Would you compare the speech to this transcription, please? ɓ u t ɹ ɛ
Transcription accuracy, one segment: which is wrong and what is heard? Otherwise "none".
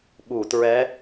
none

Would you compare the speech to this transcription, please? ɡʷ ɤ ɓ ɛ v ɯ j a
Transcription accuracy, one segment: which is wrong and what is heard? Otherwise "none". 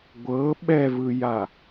none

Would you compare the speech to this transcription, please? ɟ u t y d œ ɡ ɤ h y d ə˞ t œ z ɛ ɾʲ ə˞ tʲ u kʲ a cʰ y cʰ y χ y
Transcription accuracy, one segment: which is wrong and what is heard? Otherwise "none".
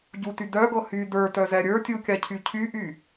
χ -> ʔ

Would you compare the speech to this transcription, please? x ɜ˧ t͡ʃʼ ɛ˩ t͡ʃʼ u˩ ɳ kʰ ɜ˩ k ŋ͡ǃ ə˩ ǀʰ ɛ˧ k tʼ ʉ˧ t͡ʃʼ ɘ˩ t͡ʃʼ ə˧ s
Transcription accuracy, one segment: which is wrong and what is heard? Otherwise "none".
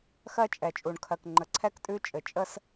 none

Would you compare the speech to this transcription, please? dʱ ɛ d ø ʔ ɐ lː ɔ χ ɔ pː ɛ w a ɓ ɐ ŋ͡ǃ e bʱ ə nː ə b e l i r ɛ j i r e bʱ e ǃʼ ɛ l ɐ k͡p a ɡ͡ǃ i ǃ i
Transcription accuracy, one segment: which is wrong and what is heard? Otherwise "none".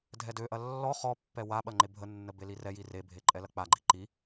none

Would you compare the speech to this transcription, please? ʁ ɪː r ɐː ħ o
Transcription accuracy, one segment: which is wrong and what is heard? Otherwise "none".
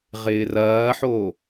none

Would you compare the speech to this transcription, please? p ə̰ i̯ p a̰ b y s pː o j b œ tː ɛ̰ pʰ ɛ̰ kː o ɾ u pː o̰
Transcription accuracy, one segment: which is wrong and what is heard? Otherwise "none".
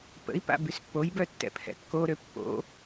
u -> ø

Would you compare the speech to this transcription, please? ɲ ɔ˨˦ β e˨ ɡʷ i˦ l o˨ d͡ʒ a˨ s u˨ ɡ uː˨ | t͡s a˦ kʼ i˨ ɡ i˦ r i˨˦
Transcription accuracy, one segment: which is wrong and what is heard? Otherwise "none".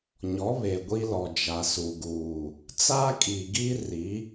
o˨ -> ɔ˨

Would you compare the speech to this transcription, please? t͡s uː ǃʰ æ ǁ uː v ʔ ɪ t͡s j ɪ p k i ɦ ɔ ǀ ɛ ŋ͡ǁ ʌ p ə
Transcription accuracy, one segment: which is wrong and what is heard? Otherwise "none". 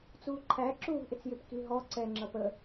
none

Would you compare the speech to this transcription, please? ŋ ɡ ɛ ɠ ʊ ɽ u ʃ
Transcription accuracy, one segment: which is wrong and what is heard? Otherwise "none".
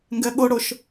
u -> ʊ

